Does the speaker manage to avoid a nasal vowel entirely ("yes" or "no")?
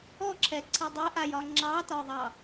yes